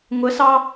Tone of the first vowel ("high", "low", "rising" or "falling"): rising